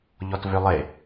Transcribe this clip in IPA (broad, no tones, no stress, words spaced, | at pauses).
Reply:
ʎɔtvølˠe